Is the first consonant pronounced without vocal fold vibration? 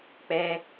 yes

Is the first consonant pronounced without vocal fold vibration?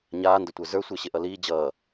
no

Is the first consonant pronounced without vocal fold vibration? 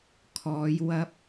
yes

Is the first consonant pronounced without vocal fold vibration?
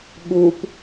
no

